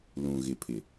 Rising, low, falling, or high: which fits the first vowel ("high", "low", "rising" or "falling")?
low